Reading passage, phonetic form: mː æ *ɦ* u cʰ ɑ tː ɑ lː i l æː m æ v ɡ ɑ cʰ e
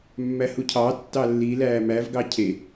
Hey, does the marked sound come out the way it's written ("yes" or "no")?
no